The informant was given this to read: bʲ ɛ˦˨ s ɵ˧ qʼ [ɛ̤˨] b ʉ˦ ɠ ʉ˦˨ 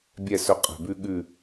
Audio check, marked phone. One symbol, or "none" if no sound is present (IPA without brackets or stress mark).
ɛ̤˨